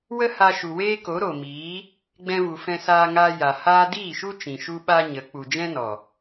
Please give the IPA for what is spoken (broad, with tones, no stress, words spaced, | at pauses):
wə˦ha˧ ʃu˨weː˦ko˨˦ ɾo˨miː˨˦ | ɡ͡bɛ̃˧vu˨fɛ̃˧ saː˧ŋaː˧ja˨ haː˦ diː˦˨ʃu˦ t͡ʃĩ˨ʃu˦ɓa˦ ɲə˨˦ k͡pu˨d͡ʒɛ̃˦nɔ˨